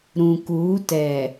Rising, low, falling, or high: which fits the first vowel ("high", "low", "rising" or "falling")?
low